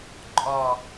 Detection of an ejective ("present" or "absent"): present